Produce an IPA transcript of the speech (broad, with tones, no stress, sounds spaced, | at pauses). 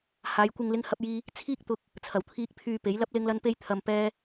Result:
h aː˨˧ j kʷ ɪ˧ ŋ l ɪ˥ ŋ h ɐ˥ p̚ j iː˥ | t͡sʰ iː˥ k̚ t̪ ʊ˧ k̚ | t͡sʰ ɐ˨˩ w t̪ʰ iː˧ k̚ pʰ yː˧ p e˨˥ j l ɐ˥ p̚ l ɪ˥ ŋ l ɐ˥ n p e˧ j t̪ʰ ɐ˧ m p ɛː˥